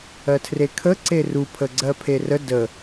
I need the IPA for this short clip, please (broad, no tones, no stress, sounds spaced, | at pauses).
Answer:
ɜ tʰ r e kʰ ə ǀ e r u pʰ ə ɡ͡ǀ ɜ pʰ e r ə d ə